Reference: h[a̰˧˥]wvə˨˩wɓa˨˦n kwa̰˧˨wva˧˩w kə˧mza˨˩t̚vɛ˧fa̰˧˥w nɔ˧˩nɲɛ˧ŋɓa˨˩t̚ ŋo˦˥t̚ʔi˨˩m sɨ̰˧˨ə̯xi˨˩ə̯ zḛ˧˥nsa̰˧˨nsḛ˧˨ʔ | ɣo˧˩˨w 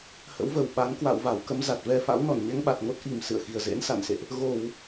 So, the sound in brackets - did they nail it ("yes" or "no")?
no